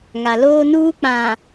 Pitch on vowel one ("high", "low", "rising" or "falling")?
low